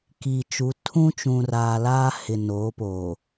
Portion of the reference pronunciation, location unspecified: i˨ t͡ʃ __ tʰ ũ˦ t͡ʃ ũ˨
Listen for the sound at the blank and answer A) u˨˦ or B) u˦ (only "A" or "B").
A